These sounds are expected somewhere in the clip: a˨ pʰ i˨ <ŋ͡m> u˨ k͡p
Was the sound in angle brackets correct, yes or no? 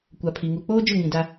no